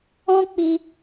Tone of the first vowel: high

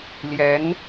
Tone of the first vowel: rising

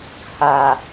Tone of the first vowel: low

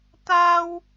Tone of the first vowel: high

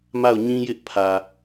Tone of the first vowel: falling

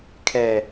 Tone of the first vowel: low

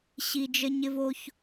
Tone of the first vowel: high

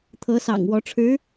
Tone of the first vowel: rising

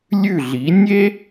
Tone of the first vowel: falling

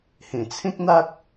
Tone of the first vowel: low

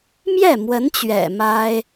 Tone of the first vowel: falling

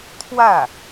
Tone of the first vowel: falling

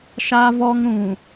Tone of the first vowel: high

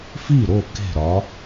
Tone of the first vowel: falling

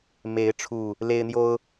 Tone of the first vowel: rising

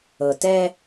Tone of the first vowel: low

